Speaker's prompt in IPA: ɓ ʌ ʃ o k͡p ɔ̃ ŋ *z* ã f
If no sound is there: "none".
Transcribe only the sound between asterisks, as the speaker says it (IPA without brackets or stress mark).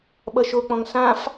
s